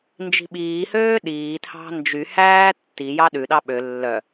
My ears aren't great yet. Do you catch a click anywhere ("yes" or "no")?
no